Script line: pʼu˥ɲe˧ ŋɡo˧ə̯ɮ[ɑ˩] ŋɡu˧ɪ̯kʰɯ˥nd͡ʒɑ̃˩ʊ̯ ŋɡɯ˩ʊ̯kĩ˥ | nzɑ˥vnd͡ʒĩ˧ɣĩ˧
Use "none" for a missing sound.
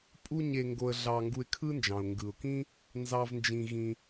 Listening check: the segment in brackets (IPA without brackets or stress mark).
ɑ˧